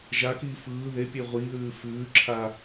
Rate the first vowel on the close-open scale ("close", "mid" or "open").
open